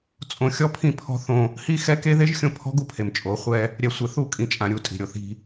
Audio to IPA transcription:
t͡sʼ õ˨ xʲ ɔ˦ pʰ ĩ˦˨ pʰ ɔ̤˦ θ õ˦ | h i˦ x ɛ˦ k e˦ ð e˦ ʒ xʲ õ˦ pʰ ɔ̤˦ ɡ u˦ pʰ e˨ m t͡ʃʼ o˨˦ χʷ ɛ˦ | ɾʲ ɛ˨ sʷ e˨ θ u˦˨ kʼ ĩ˨ t͡ʃʼ ã˨ ɾʲ u˨ tʼ i̤˨ ɾʲ o˨ θ i̤˦

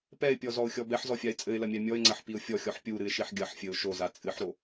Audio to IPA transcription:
p ɛ ɪ̯ pʲ ɔ z ɔ ʊ̯ xʲ ɔ b ɛ ħ z ɔ fʲ a ɪ̯ t͡sʼ ɘ ɪ̯ l ɐ mʲ a mʲ ɔ ɪ̯ ŋ͡ǀ ɐ ħ p i ʊ̯ fʲ ɔ xʲ ɔ ħ pʲ u ɾ ɨ ɪ̯ ʃ i ħ ɡʲ ɐ ħ fʲ ɘ ʊ̯ ʃ o z a t͡sʼ ɨ ħ ɾ o

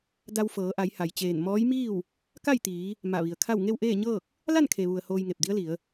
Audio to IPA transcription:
d a˧ w f ɤː˩˧ ʔ a˩˧ j h a˩ j t͡ɕ eː˧˩ n m ɔː˧˥ j m iː˥˨ w | k a˥˨ j t̪ iː˩˧ | m a˧˩ ʋ i˩ ə̯ kʰ a˥˨ w ŋ e˥˨ w ʔ eː˥˨ ɲ ɤː˥˨ k̚ | l a˥˨ n kʰ e˩ ʋ u˩ ə̯ h oː˧ j ŋ e˧˩ p̚ d i˧˥ ə̯ l i˩˧ ə̯

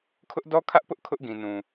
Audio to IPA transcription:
kʰ ʊ˦ ʔ d ɔ˦ kʰ ä˦ ʔ p ʊ˦ ʔ kʰ ʊ˦ ʔ ɡ ĩ˨ n ũ˨

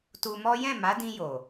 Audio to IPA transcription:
t u˧ m ɔ˦ j ɛ̃˦˨ m a˨˦ d ĩ˧ j o˨

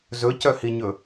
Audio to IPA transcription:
z ɵ c œ h i ɲ ɵ

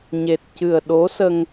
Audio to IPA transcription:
ɲ e˨˩ t̚ c ɨ˨˩ ə̯ ɗ o˧˥ s ə˧ ŋ

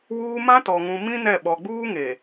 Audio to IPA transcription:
w uː˦ m ã˦ t ɔ˨ ŋ ũ˨ m ĩ˦ n ɛ˦˨ ɓ ɔ˨ ɡ͡b uː˦ ŋ e˨

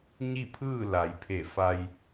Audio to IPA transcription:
ɲ i˥˨ pʰ ɯː˥˨ l a˩˧ j pʰ e˧˩ f a˧ j

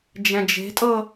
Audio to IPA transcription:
d͡ʒ ɛ̃ d͡ʒ e̤ tʼ ɤ

